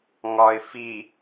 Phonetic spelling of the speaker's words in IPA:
ŋ ɒ ɪ̯ f i

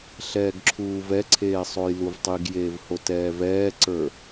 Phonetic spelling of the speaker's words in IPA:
ɬ ɛː ɡ ǁʰ uː v ɛ ǀʰ eː sˤ o j l u v tˤ i ɡ j eː v h o t ɛː v ɛː ǀ ə˞

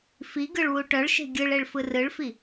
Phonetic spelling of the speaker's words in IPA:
f i ɡ ɯ ɭ w u ʈ œ ɭ ʃ e̤ ɡʲ ɯ ɭ e ɭ f ɯ r ɯ ɭ f i

